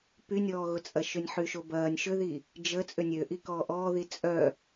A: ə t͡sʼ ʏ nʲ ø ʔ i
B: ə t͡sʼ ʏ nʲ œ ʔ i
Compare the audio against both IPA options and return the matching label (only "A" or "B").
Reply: A